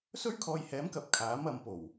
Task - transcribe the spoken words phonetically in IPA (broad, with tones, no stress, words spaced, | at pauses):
sɵ˥ɥkʰɔː˧jhɛː˨˥mkɐ˨˥p̚ kʰaː˨˥mɐ˨˧mpo˨˩w